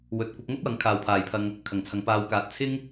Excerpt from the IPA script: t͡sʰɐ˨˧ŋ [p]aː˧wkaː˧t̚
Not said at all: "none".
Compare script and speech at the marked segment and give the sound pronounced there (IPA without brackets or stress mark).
p